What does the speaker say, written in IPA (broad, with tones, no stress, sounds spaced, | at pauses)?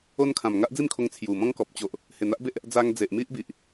o˦ n kʰ ã˨˩ m ŋ a˦ ʔ d͡z i˥˧ m kʰ o˧ ŋ t͡sʰ j u˨˩ m ɔ̃˦ ŋ k ɔ˨ p̚ t͡ɕ o˨ ʔ | h e˨˩ n̪ a˦ ʔ b e˦ ʔ | d͡z a˧ ŋ d͡z e˨ ʔ m i˦ ʔ b i˨ ʔ